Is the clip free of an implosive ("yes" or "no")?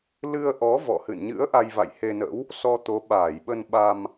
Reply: no